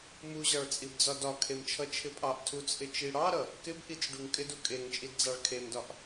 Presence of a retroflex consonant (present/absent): present